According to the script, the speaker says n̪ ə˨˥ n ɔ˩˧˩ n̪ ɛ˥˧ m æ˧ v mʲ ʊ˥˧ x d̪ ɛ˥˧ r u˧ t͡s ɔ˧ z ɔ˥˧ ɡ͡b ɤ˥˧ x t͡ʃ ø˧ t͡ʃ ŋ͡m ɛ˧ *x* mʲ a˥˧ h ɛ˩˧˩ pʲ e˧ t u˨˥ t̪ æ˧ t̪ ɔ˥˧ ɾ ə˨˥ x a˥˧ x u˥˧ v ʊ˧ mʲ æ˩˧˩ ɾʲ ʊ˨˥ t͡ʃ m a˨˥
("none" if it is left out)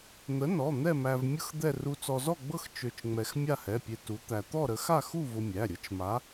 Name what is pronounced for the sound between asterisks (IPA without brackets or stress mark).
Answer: x